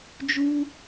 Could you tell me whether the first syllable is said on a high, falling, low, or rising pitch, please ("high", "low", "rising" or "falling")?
high